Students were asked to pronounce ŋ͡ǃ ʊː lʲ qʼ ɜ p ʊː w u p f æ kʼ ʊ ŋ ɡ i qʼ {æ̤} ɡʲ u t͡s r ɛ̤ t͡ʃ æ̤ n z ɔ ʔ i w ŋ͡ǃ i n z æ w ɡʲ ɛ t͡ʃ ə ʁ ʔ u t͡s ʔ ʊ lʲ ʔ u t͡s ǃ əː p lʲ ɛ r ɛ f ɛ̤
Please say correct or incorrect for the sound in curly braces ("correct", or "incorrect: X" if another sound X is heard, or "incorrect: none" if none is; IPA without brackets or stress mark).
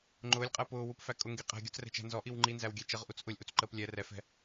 correct